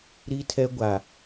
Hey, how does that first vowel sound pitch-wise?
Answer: high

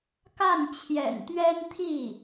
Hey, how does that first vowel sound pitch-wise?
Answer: falling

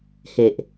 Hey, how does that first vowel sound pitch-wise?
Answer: low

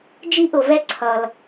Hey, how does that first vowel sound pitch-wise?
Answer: high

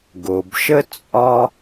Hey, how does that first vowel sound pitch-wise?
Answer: low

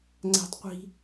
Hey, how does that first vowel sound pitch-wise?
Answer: high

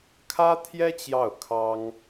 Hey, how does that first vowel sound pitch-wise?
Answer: high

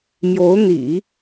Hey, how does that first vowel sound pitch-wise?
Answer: rising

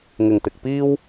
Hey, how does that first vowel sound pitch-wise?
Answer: low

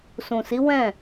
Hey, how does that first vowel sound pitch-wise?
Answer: low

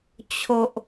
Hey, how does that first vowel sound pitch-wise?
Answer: low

